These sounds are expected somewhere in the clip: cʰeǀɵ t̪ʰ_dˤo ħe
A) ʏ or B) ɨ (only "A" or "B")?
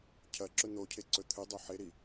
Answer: B